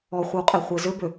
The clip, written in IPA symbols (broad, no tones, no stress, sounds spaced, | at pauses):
ɔ χʷ ɛ w qʼ e χʷ e z ø b ø